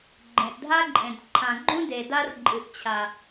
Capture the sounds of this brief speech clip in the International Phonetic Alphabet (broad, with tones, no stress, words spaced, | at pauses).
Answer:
ɡ͡ǃẽ˨ʔdʱa˦ǃʼẽ˨d ǃʰã˨ɡ͡ǃũ˦ de˨da˦r ǃʼɨ˨ʔt͡ɕʰa˨